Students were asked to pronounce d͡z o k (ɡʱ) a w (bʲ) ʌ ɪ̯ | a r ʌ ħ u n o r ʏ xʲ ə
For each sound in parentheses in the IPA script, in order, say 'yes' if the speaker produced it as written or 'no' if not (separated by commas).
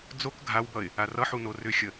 yes, no